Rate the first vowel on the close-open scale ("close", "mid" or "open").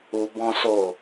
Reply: close